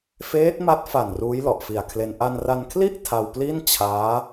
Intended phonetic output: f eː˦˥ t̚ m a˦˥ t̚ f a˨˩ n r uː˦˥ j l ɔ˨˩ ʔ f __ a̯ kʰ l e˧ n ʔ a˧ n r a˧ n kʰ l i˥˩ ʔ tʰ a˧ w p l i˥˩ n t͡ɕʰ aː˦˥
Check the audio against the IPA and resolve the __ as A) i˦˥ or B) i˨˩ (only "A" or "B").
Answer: B